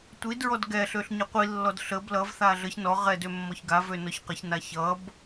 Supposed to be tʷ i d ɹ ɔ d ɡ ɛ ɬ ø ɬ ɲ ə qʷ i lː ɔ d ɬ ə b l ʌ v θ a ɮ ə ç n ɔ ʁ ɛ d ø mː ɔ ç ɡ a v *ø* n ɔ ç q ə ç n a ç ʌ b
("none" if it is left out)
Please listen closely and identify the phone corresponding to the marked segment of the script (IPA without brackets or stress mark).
ø